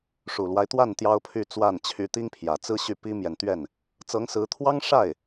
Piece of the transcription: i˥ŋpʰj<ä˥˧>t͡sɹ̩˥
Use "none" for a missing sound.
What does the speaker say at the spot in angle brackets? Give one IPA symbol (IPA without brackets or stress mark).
ä˨˩